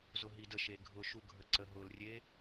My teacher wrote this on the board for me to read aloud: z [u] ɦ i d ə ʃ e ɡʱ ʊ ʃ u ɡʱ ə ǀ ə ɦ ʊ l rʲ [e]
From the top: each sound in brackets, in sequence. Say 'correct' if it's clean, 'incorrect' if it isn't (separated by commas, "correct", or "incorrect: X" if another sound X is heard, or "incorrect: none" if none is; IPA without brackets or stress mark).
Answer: incorrect: ʊ, correct